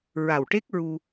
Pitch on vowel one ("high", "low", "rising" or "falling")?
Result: low